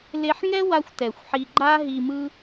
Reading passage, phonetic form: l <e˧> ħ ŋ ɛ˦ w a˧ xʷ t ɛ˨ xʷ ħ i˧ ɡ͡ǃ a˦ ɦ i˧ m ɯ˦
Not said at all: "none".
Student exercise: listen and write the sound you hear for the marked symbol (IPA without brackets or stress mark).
e˧